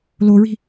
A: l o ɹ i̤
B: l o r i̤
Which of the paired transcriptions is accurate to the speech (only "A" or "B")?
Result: A